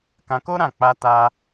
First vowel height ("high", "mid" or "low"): low